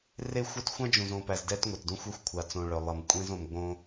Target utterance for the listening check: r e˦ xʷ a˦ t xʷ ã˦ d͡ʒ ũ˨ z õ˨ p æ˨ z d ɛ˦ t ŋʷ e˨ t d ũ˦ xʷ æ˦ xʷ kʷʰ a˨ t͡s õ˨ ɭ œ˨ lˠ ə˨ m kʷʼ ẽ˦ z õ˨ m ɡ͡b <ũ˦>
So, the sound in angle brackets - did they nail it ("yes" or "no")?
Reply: no